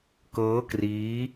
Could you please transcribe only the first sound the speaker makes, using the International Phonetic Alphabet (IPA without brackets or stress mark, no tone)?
k